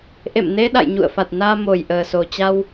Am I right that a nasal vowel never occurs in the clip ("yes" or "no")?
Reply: yes